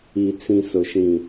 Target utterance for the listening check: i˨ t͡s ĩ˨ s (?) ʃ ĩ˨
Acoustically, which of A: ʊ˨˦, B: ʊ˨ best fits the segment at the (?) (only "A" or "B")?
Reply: B